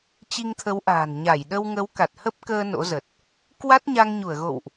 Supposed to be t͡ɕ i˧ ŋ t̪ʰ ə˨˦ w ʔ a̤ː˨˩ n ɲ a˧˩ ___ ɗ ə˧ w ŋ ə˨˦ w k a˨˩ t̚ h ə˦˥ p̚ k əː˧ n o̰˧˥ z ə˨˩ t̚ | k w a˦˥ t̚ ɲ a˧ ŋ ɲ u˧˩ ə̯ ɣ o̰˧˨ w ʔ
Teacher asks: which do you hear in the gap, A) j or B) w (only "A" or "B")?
A